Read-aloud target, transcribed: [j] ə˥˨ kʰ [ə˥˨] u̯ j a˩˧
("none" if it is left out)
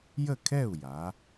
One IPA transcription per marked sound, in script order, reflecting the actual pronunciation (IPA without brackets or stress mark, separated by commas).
j, ɛ˥˨